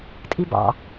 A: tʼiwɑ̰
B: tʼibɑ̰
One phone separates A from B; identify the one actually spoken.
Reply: B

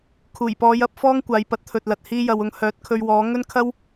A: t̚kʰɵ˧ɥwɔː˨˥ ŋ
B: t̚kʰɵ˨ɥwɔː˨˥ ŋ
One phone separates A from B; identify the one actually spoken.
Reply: A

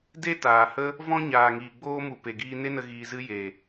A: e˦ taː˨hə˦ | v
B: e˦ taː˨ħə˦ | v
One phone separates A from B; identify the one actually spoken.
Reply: A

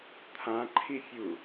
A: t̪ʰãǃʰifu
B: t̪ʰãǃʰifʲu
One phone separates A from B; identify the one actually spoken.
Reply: B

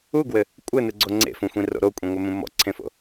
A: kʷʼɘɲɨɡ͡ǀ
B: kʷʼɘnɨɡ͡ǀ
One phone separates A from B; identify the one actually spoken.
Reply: B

